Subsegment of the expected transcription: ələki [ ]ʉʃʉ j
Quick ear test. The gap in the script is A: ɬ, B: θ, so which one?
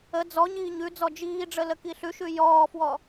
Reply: A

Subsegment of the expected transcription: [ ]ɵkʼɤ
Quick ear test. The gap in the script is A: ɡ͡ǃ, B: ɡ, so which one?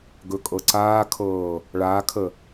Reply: B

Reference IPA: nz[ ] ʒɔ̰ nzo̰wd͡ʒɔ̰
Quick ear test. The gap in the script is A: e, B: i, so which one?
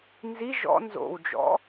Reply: B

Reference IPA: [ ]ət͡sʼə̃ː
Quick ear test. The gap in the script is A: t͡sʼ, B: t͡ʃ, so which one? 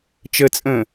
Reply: B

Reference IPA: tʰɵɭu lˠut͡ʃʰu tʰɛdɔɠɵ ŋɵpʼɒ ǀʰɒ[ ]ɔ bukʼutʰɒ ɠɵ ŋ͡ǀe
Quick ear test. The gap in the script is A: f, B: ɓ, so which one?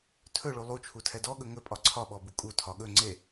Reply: B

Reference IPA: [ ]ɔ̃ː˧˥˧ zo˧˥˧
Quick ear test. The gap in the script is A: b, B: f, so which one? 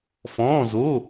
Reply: B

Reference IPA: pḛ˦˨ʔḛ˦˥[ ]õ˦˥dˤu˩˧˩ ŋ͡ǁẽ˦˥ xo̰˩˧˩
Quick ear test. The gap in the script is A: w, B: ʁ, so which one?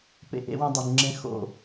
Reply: A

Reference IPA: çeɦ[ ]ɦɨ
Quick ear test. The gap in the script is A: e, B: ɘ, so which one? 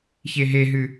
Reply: A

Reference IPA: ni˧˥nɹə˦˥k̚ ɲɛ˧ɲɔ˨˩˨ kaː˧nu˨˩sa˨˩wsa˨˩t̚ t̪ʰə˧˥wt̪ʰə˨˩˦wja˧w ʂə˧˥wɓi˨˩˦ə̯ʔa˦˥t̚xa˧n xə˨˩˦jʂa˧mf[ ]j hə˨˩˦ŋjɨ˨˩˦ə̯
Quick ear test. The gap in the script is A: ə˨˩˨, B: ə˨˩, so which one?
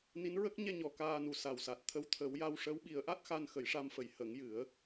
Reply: A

